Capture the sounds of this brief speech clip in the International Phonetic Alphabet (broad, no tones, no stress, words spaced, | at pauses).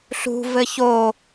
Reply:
ɬṳvɘ ço